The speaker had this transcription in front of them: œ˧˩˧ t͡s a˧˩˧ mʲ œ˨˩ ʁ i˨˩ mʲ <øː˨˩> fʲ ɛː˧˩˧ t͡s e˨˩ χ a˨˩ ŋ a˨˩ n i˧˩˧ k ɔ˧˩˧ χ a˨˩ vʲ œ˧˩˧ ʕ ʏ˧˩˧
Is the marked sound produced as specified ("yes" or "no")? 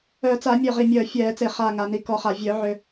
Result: no